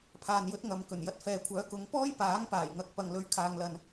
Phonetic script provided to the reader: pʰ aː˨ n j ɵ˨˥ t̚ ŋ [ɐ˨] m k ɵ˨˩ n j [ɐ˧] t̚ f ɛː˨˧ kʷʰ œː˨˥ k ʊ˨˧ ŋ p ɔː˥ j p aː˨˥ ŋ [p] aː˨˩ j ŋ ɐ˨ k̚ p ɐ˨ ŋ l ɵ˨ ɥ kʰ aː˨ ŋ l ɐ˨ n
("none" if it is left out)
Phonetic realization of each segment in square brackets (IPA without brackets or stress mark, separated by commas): ɐ˨, ɐ˧, p